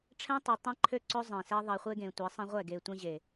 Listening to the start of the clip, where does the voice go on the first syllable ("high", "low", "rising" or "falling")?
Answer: high